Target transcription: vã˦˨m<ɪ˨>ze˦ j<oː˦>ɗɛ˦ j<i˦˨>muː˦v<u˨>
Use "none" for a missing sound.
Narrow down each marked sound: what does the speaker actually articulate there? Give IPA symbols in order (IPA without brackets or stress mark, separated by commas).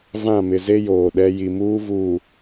ɪ˨, oː˨, i˨, uː˨